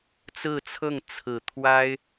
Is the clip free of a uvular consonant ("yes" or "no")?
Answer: yes